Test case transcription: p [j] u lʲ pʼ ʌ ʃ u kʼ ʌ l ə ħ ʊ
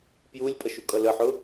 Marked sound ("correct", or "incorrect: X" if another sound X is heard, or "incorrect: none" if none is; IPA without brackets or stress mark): correct